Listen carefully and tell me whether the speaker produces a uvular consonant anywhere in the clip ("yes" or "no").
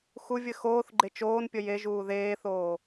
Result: no